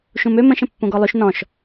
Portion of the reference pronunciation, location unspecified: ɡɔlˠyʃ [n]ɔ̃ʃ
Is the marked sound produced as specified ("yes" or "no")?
yes